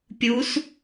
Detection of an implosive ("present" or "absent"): absent